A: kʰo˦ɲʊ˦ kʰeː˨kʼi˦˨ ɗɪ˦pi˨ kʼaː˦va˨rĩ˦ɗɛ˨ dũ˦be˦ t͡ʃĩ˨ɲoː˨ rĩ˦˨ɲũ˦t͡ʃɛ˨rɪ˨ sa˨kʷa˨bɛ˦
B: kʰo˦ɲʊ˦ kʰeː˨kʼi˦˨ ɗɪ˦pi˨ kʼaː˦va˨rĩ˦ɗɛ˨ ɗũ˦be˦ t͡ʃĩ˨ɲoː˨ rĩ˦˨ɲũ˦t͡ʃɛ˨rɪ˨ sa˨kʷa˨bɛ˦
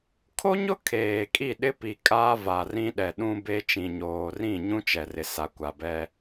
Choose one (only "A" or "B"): B